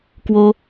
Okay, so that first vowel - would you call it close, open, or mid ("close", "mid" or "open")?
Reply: mid